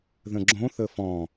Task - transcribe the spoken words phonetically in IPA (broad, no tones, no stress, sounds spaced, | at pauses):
ð ə̃ ɡ͡ǁ õ θ ə f ɔ̃